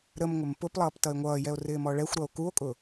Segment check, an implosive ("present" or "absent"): absent